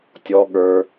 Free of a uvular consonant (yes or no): yes